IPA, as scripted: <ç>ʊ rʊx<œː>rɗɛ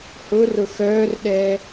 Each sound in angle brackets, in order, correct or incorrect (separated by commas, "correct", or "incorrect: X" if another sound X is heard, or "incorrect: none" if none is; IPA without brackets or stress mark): incorrect: h, correct